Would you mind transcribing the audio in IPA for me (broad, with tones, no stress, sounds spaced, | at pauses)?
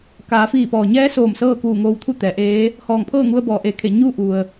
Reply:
k aː˩˧ f iː˧˩ p ɔː˩ ɲ ɛː˧˥ s oː˧˩ m s ɤː˥˨ k uː˧˩ ŋ oː˧ w t̪ʰ u˥˨ t̪ ɛː˩˧ ʔ eː˧˥ | h ɔː˧˩ ŋ pʰ ɤː˥˨ ŋ u˧ ə̯ b ɔː˩˧ ʔ eː˩ kʰ e˧˩ ɲ uː˥˨ ʔ u˩ ə̯